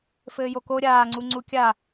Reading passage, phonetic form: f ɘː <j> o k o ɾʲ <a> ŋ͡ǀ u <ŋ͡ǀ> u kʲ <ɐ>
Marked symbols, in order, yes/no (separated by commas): yes, no, yes, no